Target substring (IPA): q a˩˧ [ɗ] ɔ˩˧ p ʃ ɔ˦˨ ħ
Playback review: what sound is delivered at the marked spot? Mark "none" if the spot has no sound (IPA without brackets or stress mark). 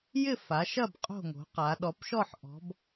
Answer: ɗ